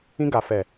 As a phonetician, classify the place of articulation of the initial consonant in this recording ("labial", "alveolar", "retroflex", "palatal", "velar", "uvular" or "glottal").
velar